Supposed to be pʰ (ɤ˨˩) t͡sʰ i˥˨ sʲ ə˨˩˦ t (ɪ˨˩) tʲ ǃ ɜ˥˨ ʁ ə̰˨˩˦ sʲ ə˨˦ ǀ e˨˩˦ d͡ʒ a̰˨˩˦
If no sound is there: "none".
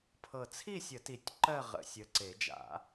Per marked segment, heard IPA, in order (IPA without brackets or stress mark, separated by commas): ɤ˨˩, i˨˩